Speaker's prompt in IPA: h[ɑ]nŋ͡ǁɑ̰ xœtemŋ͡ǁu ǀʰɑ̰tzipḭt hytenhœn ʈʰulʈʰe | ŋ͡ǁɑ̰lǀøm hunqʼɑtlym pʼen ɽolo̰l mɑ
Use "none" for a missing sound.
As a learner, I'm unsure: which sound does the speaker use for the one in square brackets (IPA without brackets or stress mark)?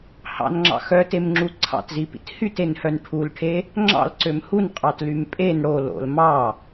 ɑ̰